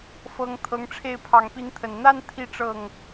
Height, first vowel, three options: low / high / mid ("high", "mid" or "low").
mid